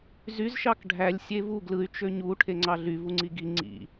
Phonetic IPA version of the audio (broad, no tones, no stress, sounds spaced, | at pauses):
z y z ʃ ɑ k ɖʱ æ lʲ sʲ e v u ɡ l ɯ y̯ t͡ʃ ø ɲ u ʈʰ e ŋ͡ǀ ɑ ɮ y v u ŋ͡ǀ i ɡ i ŋ͡ǀ ḭ